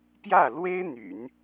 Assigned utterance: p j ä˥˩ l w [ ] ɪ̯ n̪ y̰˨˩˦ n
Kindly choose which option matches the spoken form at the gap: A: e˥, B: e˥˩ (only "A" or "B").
A